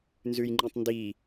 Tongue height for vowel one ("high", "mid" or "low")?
high